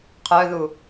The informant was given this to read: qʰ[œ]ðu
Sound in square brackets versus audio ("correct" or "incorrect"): correct